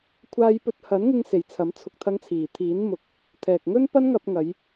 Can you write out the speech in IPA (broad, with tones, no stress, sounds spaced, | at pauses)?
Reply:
kʷʰ aː˧ j p ɵ˧ t̚ h ɐ˨˥ n ŋ ɪ˧ ŋ s e˨ j t͡sʰ ɐ˨˥ m t͡sʰ ʊ˨ k̚ t̪ʰ ɐ˨˧ ŋ t͡sʰ iː˨˩ t̪ʰ iː˨˥ n m ʊ˨˥ k̚ | t̪ʰ ɛː˨ k̚ ŋ ɵ˥ n p ɐ˥ n ŋ ɐ˧ p̚ ŋ ɐ˨˧ j